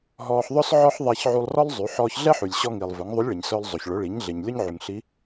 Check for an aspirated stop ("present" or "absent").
absent